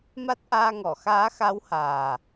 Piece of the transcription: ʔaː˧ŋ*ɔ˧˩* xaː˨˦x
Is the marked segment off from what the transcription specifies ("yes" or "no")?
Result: no